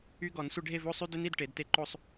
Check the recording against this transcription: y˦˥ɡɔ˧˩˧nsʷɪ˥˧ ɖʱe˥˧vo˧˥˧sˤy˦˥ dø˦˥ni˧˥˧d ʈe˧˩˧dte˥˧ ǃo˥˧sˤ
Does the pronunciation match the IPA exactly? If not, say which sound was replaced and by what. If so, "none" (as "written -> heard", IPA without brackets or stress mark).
none